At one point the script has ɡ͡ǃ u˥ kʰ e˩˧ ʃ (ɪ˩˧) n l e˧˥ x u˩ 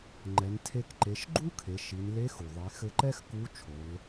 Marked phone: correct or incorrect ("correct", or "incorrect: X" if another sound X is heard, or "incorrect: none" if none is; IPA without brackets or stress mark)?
incorrect: i˩˧